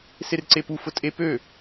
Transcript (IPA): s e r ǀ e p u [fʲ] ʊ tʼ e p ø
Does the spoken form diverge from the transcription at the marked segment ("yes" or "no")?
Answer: yes